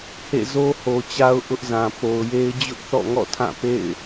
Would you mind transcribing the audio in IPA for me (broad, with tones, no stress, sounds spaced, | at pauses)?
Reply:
h ḛ˦˨ z o˦ h o˨ t͡ɕ a˦ ʊ̯ ʔ ʊ˦ ʔ z ã˨ p o˨ ʊ̯ j e˦ ɪ̯ d͡ʑ ʊ˦ ʔ θ ɔ̰˦˨ ŋ ɔ̰˦˨ tʰ ã˦˨ p ḛ˦˨ ɪ̯